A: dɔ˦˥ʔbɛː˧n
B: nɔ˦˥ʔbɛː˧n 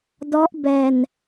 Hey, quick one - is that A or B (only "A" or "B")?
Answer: A